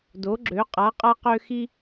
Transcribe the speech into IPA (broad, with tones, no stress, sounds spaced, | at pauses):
d o˩˥ ɡ͡ǁ ø˩˥ qʼ a˩˥ qʼ a˦ q ø˦ x i˦